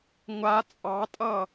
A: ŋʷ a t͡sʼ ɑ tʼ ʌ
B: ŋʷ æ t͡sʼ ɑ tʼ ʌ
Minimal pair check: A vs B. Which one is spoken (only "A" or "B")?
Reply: A